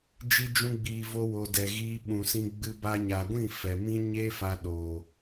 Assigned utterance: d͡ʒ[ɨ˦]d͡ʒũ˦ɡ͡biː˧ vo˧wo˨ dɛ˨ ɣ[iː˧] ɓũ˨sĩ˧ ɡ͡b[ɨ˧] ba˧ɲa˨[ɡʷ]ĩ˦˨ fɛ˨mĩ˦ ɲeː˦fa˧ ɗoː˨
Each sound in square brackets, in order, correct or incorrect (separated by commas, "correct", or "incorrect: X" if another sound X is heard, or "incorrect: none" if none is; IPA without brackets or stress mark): incorrect: i˦, correct, correct, correct